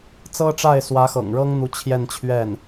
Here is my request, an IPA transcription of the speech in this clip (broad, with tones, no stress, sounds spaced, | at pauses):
t͡s ɤ˥ ʈ͡ʂ a˥˩ ɪ̯ s w ä˧˥ x ɤ̰˨˩ ŋ ɻ ɤ˥ ŋ n̪ u˧˥ t͡ɕʰ j ɛ˥˧ n t͡ɕʰ ɥ ɛ˥˩ n